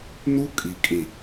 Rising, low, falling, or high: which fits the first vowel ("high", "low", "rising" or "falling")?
high